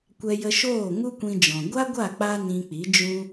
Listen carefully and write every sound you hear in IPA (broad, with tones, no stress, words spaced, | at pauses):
kʷɛ˧jə˧ʃoː˦˨ ŋu˦kʷĩ˧d͡ʒɔ̃˨ ɡʷa˦ɡʷa˦˨ k͡pa˦nĩ˧k͡pi˨˦ d͡ʒũ˦